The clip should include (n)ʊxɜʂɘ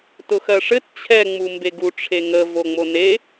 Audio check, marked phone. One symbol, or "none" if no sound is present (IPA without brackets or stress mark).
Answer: t